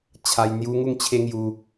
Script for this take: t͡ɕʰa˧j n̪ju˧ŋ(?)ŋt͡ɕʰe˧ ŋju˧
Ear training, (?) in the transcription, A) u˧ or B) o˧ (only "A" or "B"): A